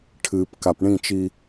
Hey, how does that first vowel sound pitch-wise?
low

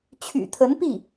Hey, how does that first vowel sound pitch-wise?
low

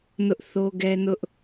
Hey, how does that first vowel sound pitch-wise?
high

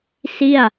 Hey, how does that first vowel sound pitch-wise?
falling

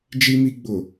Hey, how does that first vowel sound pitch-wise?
high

